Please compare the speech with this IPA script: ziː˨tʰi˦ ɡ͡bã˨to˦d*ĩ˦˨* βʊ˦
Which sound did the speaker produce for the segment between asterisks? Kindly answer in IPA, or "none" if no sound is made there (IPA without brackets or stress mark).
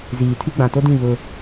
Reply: ĩ˦˨